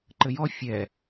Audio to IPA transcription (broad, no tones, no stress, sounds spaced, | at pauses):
ǃ ɘ j ɔ fʲ ɛ